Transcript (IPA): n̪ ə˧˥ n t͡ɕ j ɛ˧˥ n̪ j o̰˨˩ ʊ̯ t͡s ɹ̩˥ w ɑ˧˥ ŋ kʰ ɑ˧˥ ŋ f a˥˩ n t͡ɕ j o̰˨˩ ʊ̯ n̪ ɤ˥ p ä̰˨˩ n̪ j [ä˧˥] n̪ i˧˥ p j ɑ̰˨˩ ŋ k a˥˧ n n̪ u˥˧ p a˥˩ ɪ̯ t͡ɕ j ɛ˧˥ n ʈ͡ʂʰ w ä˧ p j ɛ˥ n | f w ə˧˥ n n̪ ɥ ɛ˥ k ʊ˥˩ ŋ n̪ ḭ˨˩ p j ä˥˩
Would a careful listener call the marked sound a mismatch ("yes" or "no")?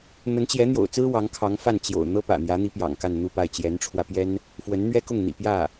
no